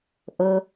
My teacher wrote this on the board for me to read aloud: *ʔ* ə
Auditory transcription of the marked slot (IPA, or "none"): ʔ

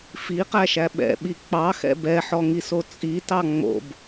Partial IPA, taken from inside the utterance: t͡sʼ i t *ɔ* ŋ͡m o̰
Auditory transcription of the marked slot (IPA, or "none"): ɑ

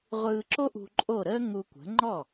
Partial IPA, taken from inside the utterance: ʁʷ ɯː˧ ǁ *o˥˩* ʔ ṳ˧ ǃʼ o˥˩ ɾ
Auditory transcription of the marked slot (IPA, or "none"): o˥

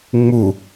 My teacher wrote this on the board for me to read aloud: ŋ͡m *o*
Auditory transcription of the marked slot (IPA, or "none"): u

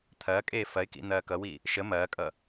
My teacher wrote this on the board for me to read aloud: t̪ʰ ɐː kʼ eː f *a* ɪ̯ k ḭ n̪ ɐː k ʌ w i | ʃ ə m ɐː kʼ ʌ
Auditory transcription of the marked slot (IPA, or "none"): ɐ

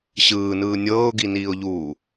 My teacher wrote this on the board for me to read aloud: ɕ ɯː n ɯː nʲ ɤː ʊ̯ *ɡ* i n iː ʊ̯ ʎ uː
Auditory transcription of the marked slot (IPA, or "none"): ɡ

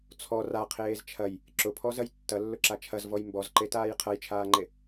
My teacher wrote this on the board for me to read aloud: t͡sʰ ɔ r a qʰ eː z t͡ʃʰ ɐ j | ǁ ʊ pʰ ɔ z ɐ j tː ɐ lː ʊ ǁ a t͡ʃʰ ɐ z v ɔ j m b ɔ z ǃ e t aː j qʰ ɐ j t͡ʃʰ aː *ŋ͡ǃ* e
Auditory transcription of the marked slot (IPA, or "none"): ŋ͡ǃ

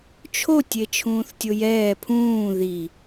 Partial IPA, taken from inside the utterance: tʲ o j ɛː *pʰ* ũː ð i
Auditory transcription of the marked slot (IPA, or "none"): pʰ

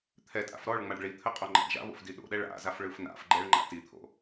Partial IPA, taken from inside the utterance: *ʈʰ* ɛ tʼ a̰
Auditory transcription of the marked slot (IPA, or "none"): t̪ʰ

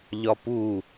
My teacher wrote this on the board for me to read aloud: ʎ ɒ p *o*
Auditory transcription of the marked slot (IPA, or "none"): u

